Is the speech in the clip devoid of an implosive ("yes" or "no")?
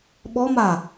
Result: no